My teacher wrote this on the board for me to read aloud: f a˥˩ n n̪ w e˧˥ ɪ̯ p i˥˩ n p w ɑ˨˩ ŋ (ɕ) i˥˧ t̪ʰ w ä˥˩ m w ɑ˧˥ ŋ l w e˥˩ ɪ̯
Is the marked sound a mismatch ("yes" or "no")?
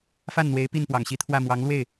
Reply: no